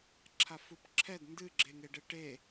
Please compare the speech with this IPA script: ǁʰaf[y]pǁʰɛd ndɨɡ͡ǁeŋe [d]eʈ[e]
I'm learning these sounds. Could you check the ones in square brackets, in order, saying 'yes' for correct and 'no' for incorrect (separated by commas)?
no, no, yes